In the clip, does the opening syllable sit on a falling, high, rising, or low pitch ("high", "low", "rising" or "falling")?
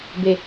low